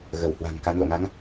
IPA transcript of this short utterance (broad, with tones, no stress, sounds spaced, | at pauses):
ɣ ə˧˩ w h w a̤˨˩ ŋ k a˨˦ n l o̰˧˨ ŋ a˨˦ ŋ